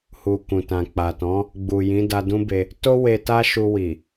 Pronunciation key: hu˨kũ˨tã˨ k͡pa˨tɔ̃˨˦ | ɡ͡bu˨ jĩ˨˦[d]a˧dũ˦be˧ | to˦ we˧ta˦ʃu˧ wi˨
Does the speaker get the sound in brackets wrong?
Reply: no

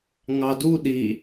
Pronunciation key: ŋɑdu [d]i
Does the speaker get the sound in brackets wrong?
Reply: yes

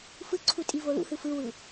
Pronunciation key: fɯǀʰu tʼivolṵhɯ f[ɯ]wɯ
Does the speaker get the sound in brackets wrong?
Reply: no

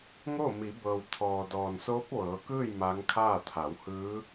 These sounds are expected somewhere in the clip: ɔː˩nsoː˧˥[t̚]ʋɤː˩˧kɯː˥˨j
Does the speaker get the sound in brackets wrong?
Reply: yes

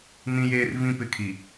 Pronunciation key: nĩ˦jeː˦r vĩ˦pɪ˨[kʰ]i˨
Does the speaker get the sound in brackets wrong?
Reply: no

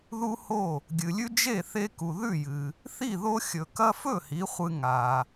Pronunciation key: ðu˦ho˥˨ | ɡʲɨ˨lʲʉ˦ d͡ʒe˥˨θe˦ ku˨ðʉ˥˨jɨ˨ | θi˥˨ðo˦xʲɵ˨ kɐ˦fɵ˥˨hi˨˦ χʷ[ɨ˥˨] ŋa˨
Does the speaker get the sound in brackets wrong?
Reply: yes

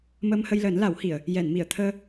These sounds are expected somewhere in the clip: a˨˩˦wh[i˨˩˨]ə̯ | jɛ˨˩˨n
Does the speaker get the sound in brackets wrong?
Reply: no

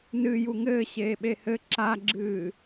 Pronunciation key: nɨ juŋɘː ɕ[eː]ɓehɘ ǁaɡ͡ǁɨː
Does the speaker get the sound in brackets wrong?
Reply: no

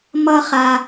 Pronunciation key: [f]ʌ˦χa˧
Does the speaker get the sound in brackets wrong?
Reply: yes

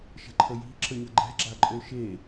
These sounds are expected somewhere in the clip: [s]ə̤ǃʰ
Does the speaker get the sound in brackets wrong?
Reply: yes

